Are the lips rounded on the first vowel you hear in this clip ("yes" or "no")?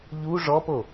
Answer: yes